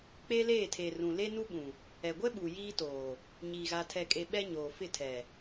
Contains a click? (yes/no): no